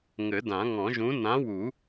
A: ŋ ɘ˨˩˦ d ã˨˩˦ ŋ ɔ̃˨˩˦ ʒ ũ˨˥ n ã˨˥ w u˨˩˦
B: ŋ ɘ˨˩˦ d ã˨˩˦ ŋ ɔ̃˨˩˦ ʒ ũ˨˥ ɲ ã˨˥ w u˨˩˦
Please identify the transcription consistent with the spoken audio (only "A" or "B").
A